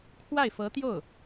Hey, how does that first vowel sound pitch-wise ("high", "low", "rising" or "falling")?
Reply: falling